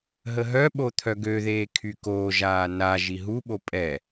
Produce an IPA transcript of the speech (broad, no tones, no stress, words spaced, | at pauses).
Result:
ɦəɦœɓo t̪ʰœɡøðeː kʰykoːʒaː na ʒiɦuɓo pʼɛ